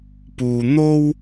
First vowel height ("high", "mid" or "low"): high